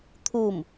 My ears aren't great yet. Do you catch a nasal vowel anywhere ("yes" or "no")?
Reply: no